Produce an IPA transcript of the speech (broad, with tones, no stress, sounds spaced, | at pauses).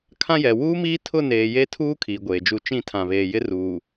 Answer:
kʰ ã˦ j ɛ˨ w uː˦ m iː˦ tʰ ʊ˦˨ n eː˨ j e˦ tʰ uː˦ kʰ iː˨ ɡʷ eː˨ d͡ʒ u˦˨ t͡ʃ ĩ˦˨ tʰ ã˨ β eː˨ j ɪ˦ r uː˨